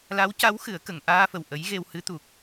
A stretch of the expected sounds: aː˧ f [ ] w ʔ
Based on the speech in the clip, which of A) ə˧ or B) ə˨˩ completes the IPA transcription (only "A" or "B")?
B